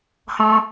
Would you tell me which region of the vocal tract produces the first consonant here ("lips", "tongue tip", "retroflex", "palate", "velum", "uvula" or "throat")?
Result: throat